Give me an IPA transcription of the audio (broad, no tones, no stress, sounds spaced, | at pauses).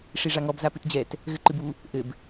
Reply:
ʂ i ʐ a ŋ ɔ b z a p ɨ t d͡ʑ ɛ t | ɣ ɘ ǃ ɨ b u | ʔ ɘ b